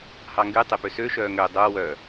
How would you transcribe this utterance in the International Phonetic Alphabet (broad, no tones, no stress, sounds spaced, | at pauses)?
h ɑ ŋ ɡ y tˤ e p ø s ø ʃ œː ŋ ø dˤ o w œ